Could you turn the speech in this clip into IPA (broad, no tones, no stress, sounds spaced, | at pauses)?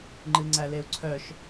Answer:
ŋ͡ǃ ɨ ŋ͡ǀ æ l e u̯ ǀʰ œ ʃ